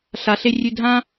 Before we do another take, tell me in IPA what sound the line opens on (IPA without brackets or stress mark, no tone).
ɬ